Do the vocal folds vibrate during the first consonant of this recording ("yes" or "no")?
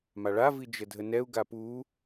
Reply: yes